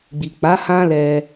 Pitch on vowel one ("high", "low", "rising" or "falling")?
low